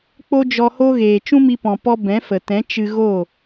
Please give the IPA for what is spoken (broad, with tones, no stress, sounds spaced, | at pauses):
k͡p o˦ d͡ʒ ɔ˧ h o˦ ɣ eː˨ t͡ʃ ũ˦ m i˧ p ɔ̃˨ p ɔ˦ b ɛ̃˨˦ f ə˨ t ɛ̃˨˦ t͡ʃ ɨ˧ ɣ o˦˨